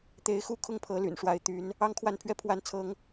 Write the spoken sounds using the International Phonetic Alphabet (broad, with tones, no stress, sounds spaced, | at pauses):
t̪ e˨˦ ɪ̯ x u˥˨ kʰ ʊ˥˨ ŋ pʰ ɤ˨˦ l y̰˨˩ n ʂ w a˨˦ ɪ̯ t̪ y˨˦ n | ɑ˦ ŋ kʰ w a˥˨ n pʰ ɥ ɛ˥˨ pʰ w a˥˨ n t͡sʰ ɤ˦ ŋ